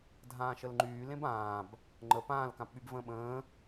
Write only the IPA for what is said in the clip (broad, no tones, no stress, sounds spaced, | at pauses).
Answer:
dʱ ãː ʃ ə l ŋ͡ǃ yː l ẽ b ãː b | ŋ͡ǃ ə p ãː l k ã p ɓ y b v ə̃ː ɓ ə̃ː